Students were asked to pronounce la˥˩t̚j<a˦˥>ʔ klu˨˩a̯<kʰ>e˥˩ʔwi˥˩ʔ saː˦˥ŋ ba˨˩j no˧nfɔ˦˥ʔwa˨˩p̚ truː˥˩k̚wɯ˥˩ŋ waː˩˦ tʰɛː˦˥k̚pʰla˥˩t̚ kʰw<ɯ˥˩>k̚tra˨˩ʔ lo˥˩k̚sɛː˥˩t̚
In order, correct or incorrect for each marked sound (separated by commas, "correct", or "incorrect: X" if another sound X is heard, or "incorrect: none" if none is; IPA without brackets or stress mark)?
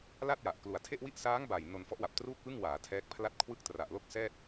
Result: incorrect: a˨˩, incorrect: tʰ, correct